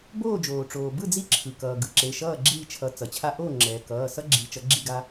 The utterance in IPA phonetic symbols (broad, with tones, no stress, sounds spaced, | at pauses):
b oː˥˩ d͡ʒ oː˩ ʈ͡ʂ oː˩ b ɯ˥˩ d͡z i˦ ǁʰ ɯ˩ k ʌː˩ ɡ ɯ˩ ǁ e˩˧˩ ʃ ʌː˥˩ ɡ͡ǁ iː˥˩ t͡ʃʰ ʌ˩˥ t͡s ʌ˩ t͡ɕʰ a˦ ʔ oː˥˩ ŋ͡ǁ ɛː˩ k ʌː˩˧˩ s ʌ˦ ɡ͡ǁ i˩˥ t͡ʃ ʌ˩˥ ɡ͡ǁ i˥˩ ɡ a˦